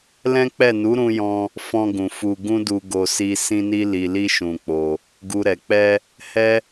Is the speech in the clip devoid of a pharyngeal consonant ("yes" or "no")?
yes